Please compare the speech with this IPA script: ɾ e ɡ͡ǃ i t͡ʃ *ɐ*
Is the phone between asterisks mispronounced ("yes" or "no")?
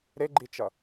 no